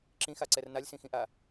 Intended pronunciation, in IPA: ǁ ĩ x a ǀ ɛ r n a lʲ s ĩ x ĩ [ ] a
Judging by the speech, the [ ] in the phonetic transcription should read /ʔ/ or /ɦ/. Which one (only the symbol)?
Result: ʔ